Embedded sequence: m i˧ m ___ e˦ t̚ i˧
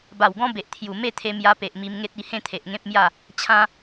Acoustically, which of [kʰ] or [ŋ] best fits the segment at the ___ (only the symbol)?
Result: ŋ